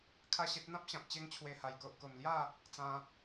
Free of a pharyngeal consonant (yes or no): yes